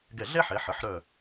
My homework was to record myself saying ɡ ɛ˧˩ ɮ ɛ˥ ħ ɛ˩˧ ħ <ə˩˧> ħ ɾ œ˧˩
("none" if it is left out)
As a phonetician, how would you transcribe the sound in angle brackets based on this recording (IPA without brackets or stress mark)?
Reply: ə˩˧